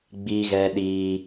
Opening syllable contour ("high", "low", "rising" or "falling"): high